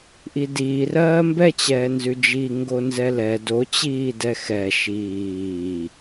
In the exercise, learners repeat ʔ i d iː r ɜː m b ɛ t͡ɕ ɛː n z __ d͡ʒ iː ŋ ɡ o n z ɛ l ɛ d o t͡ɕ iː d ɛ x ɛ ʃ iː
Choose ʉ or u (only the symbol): ʉ